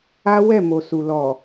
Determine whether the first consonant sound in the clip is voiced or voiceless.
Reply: voiced